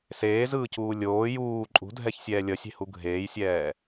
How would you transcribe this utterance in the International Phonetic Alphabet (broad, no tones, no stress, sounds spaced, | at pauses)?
s eː z ɯː c uː lʲ oː j uː ǃʼ ṳ dʱ ɛ ç sʲ ɛː lʲ ʌ sʲ e̤ h u ɡʱ eː j sʲ ɛː